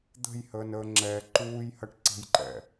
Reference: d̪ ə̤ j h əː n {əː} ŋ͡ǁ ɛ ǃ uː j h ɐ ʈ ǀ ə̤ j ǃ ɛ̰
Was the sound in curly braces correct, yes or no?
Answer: yes